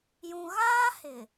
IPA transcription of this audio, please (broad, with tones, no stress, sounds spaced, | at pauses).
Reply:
j ũ˨ ɣ aː˦ h ɪ˨